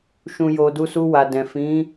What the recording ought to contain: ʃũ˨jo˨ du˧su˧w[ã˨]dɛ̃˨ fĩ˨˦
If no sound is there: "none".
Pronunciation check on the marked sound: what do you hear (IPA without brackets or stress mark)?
a˨